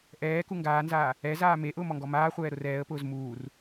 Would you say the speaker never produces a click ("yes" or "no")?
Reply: yes